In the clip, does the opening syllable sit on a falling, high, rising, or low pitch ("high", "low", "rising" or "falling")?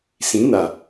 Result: rising